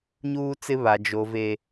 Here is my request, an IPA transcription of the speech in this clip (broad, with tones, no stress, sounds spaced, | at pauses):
ɲ uː˦ t͡s ɪ˦ β a˨ d͡ʒ o˨ v e˨